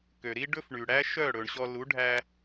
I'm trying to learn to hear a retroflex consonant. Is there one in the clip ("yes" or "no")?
yes